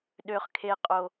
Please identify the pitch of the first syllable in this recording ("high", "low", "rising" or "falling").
high